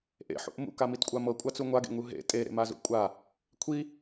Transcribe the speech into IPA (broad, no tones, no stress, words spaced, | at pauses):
ʔḛħṵʔ mṵkamitkʷʼa mɤkʷʼat͡su ŋʷaɡḛŋu ɦḛ tʼeɾḛmazṵ kʷʼa | kʷʰi